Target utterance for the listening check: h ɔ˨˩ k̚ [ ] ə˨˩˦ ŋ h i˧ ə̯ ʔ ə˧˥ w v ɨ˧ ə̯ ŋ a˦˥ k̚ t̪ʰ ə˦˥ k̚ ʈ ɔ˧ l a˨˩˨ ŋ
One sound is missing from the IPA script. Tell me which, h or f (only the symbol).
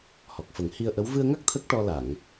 f